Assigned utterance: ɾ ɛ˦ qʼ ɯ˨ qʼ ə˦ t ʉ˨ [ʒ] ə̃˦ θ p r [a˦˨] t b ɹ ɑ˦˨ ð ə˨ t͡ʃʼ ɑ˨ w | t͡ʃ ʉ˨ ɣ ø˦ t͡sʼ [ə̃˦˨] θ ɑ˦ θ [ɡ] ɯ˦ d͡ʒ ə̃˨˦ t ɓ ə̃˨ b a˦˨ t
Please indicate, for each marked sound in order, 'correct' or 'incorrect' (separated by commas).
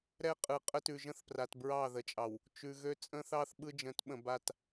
correct, incorrect, incorrect, incorrect